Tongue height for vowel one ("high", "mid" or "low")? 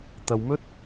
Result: low